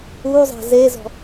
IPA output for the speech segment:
uzˤa̤ zezɔ̤

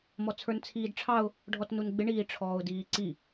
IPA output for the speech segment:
mɔt͡sʰə˞nt͡sʰiːdʈ͡ʂʰɑʊ̯ | ɖʱɔtnunɡ͡bɪ ɳiːʈ͡ʂʰɔːʊ̯diːǀi

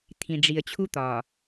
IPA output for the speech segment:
t̪ʰĩ˨ɖ͡ʐi˨ə̯t͡ɕʰu˦ t̪ɒ˨

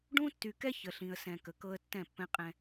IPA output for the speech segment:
ɖũ˦ tːy˨kɛ˦ çə˨ɬĩ˨ə̯sɛ̃˨ kə˨kɤ˦ə̯ tːɛ̃˦˨pːɛ̃˦qʼɛ̃˦

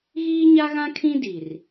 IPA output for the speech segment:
ɣiː˦ɲa˦ɣã˦kʰĩ˦ di˨r

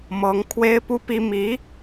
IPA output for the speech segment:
mɤ˧˥ŋkʰwe˥ɪ̯pu˥pi˥ mi˧˥

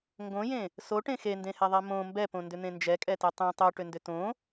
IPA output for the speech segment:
ŋɡõjẽ | soʈẽ xendẽhɛðˤɛ mõ mbɛpõndʏn̪ẽ nd͡ʒɛkʼɛte tˤẽ tˤoʈʏndʏ tõ

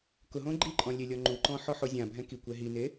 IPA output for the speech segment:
kʊ ɦõɡ͡ǃiǃʼɔ̃ lʲelʲɔŋ͡ǃuǃɔ̃ ħɔħozʲãbʱɛ̃ ki kʷɛɦine

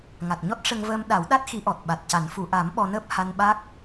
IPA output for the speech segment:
ŋa˨˩t̚ɲɔ˦˥t̚ ʂə˧ŋvəː˧mɗa˨˩˦wɗa˦˥t̚ xi˧˥ʔɔ˨˩t̚ɓa˨˩t̚ca˨˩˦n fu˨˩˨ʔa˨˩˦m ɓɔ˧nəː˦˥p̚ ha˧nɓa˦˥k̚

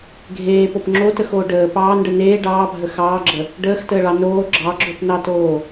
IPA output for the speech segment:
ɡʱeːpop ŋ͡ǁotəxoː ɖəː pɑːnɖə neː ɖɑːbʱə xɑːɡ͡ǁə | ɖəːxtəːɭɑ noː ɡ͡ǁɑɡ͡ǁopnɑtoː

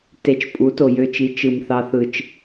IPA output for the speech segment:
te˧t͡ʃ pʼu˨˦to˨jø˧t͡ʃi˨˦ t͡ʃɯ˨mθɑ˧θɯ˨t͡ʃ

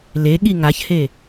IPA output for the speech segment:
leɠi ŋaçhe

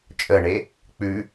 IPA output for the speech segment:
t͡ʃʼəɳe | k͡pʉ

